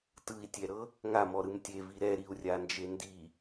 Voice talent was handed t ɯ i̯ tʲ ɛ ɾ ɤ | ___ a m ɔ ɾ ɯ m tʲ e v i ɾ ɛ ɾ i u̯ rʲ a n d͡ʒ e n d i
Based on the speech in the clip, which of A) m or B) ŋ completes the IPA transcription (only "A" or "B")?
B